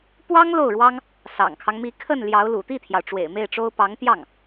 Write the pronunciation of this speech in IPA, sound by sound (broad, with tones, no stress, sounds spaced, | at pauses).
p w ɑ˥ ŋ l o˥˩ ʊ̯ ɻ w ɑ˥ ŋ | s ɑ̰˨˩ ŋ kʰ ɑ˦ ŋ m i˧˥ kʰ ə˥˩ n l j ɑ˧˥ ʊ̯ l ṵ˨˩ t̪ i˥˩ t̪ʰ j ɑ˩ ʊ̯ ʈ͡ʂ w ḛ˨˩ ɪ̯ m e˥˩ ɪ̯ ʈ͡ʂ o˥ ʊ̯ p ɑ˧˥ ŋ t̪ j ɑ˥˩ ŋ